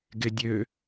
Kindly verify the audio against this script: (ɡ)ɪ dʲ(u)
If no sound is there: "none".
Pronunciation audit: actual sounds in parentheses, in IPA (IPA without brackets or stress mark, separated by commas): ɡ, ø